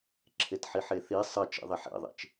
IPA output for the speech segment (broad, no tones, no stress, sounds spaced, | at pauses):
ǁʰ e t ħ i ħ e θ i sˤ ɘ t͡ʃ ḭ ðˤ i ħ ḛ ðˤ ḛ t͡ʃ